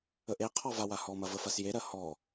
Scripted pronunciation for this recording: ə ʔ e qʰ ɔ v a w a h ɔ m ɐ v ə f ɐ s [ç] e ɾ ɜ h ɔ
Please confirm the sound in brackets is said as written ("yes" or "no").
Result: no